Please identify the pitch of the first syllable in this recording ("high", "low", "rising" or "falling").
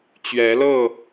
rising